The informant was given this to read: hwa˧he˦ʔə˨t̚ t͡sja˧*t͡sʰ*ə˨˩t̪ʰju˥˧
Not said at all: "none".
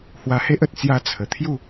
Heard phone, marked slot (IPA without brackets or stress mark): t͡sʰ